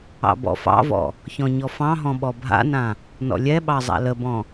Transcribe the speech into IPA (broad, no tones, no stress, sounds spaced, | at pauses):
ɑ̰ b ɔ̰ f ɑ̰ v ɔ̰ | ç ɔ̃ ɲ ɔ f ɑ̃ ɦ ɔ̃ ɓ ɔ bʱ a̰ n ã | n ɔ̰ lʲ ɛ ɓ ɑ zˤ a̰ l ə b ɔ̃